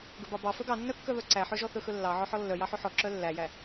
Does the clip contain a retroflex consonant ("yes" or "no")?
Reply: no